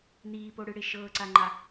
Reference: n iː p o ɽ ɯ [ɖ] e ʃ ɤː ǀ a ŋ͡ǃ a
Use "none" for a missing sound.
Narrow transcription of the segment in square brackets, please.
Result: ɽ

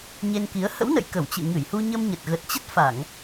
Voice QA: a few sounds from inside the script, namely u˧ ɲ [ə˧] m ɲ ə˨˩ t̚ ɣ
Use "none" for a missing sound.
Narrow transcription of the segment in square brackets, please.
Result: ə˧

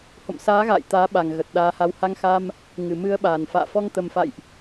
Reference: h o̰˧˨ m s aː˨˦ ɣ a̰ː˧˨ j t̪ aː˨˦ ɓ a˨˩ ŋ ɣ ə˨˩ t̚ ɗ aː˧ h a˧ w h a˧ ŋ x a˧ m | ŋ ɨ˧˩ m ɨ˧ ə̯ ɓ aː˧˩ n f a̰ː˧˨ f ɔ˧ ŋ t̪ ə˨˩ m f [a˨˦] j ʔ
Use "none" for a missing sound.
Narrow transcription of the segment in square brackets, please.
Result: a̰˧˨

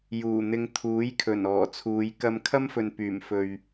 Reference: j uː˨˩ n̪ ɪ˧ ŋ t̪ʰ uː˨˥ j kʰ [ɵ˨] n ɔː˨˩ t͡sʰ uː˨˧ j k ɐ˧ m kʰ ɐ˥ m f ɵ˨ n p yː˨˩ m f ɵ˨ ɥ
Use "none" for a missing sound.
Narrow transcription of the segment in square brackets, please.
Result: ɵ˨˩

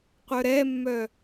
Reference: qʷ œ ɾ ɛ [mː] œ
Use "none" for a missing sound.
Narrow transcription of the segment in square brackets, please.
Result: mː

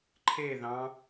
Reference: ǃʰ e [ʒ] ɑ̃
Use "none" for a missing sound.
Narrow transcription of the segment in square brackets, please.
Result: ð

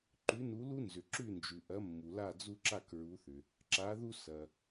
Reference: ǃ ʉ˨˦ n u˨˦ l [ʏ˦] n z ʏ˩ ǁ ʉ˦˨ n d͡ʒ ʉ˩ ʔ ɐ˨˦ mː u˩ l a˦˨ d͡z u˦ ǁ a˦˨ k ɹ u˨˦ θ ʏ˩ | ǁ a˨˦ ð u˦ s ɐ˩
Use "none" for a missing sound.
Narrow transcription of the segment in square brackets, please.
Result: u˦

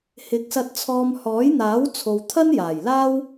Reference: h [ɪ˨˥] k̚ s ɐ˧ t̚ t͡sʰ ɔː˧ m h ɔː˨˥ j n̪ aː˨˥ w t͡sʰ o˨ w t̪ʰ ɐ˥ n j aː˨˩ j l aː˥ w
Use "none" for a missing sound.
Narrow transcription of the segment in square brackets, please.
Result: ɪ˨˥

